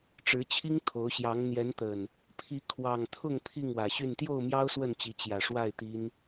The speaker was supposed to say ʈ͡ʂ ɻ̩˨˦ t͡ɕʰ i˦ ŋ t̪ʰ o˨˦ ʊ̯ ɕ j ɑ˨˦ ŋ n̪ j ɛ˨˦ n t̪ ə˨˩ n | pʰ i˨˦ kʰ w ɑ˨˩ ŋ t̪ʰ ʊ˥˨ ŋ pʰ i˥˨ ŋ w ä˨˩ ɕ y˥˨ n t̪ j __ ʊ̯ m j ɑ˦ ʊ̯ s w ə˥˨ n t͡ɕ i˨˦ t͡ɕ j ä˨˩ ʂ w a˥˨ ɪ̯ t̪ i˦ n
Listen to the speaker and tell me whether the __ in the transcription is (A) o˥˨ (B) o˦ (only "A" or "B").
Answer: A